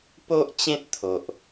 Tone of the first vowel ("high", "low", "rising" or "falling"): high